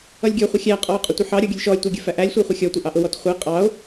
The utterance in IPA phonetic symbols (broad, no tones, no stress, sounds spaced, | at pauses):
ʌ lʲ ɡʲ ɔ χʷ ɪ xʲ æ qʼ ɔ o̯ qʼ ʊ tʷ ɪ ħ ɑ ɾʲ ɔ ɡʲ ʊ lʲ ʃ ɔ lʲ tʷ ə˞ ɡʲ ə f æ ʔ æ lʲ sʷ ə˞ χʷ ə xʲ ɔ tʷ ɪ ʔ ɑ ʔ ʊ w ɔ t χʷ ə e̯ qʼ ɑ o̯